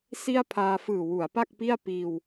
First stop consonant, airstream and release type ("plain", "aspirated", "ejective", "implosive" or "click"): aspirated